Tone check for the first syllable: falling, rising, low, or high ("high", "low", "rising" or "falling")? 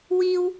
high